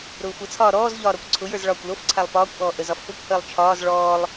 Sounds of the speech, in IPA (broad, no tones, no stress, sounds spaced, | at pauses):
ɾ ʊː xʷ ə t͡sʰ ɒː ɾ ɔː z ʎ ɒː ɾ ɔ kʷ ǀʰ ʊ j ə˞ z ɭ ɒː kʷ l o f ǀʰ a lˠ p ɒː kʷ ʔ ɔː ʔ ə z ɒ f p ʊ kʷ h əː lˠ t͡ʃʰ ɒː z ɭ ɔː lˠ